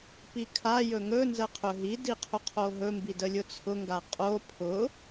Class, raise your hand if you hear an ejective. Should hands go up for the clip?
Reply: yes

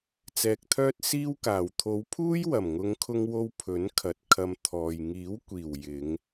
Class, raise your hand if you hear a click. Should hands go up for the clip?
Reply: no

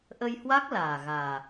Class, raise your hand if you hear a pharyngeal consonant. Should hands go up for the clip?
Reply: no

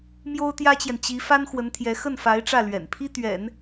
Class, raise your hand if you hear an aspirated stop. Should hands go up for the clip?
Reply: yes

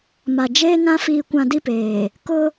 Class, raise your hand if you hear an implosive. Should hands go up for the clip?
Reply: no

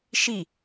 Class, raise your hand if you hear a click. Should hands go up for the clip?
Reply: no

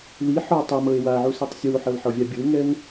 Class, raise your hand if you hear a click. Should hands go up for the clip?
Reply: no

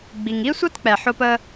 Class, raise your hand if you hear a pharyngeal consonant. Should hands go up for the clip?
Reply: yes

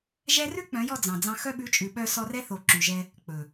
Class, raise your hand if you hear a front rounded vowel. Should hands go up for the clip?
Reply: yes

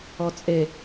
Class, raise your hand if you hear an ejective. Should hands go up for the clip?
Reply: yes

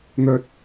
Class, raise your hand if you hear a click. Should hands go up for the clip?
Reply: no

